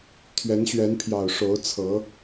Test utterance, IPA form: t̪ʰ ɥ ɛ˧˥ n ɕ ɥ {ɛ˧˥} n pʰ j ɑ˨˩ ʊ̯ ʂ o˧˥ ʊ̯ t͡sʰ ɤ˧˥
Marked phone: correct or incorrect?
correct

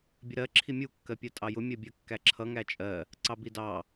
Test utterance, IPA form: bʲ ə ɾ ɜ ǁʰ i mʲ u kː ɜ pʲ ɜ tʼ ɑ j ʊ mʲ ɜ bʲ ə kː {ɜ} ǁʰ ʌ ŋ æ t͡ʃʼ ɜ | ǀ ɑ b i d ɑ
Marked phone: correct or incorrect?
incorrect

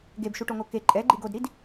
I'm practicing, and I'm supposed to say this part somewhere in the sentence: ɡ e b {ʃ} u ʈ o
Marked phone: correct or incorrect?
correct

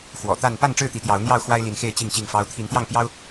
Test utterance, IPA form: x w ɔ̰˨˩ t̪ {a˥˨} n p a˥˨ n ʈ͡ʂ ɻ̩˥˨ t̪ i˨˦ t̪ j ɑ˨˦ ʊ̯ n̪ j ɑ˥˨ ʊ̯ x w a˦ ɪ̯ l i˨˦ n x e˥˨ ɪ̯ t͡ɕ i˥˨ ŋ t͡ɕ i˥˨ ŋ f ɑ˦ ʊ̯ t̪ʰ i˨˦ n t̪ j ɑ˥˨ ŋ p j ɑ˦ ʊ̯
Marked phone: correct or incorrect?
correct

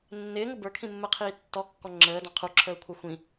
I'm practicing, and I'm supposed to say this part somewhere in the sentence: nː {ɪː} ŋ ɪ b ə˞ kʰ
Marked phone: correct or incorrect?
correct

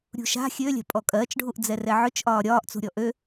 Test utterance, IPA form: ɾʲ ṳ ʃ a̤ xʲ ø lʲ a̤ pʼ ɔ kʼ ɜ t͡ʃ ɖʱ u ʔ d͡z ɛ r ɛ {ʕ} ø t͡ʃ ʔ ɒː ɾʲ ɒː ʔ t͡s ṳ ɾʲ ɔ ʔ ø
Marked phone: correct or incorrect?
correct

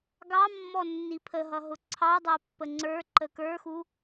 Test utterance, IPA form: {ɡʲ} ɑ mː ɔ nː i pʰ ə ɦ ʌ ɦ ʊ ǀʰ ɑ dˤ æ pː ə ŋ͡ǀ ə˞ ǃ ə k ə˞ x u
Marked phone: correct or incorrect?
incorrect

